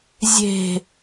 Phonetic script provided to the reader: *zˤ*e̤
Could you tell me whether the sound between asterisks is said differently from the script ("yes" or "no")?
yes